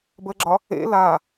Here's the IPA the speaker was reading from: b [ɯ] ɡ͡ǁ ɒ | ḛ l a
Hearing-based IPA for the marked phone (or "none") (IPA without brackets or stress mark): ə